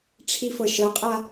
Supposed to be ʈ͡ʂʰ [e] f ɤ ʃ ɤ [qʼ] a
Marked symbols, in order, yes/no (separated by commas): no, yes